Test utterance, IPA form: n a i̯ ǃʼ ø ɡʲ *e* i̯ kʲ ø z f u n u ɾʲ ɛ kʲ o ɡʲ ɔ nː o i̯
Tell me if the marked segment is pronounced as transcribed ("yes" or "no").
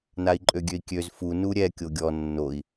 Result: no